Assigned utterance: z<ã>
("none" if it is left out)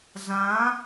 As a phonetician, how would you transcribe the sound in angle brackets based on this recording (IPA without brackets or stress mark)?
ã